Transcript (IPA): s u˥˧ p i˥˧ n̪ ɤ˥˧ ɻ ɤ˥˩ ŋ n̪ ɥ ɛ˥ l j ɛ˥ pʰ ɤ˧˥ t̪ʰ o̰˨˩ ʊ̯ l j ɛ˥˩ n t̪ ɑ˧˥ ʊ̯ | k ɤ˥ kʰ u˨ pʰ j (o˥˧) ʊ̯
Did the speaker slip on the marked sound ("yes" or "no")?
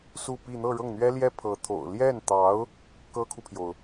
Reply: yes